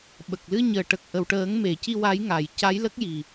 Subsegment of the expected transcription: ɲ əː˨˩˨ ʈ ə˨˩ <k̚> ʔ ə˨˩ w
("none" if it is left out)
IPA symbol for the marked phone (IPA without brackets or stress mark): k̚